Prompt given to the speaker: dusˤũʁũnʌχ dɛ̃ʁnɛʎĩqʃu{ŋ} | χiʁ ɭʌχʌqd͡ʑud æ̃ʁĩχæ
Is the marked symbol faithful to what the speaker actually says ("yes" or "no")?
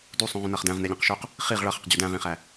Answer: no